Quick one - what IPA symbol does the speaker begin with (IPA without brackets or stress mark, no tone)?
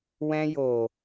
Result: w